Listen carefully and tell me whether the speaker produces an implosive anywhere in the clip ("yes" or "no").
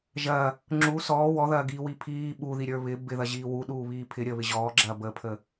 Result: yes